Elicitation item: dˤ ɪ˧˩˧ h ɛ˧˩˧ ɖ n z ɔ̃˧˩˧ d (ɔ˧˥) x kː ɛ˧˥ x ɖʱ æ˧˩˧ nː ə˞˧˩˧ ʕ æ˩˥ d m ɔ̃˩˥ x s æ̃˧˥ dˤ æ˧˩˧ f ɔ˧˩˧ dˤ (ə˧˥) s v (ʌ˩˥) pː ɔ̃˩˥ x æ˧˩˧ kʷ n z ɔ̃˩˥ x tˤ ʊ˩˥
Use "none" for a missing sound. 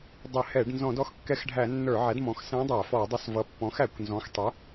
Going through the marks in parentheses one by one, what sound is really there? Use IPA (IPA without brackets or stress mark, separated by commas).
ɔ˧˥, ʊ˧˥, ʌ˩˥